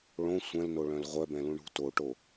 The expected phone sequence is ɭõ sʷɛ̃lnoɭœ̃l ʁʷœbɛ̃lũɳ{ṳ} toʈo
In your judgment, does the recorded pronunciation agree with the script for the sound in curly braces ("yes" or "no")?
yes